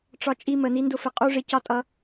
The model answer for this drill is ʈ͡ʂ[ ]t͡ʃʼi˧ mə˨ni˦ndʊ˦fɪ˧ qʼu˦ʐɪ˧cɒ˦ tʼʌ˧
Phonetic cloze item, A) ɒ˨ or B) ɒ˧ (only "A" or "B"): B